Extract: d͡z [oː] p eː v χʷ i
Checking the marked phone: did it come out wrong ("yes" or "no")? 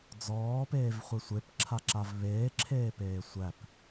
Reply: yes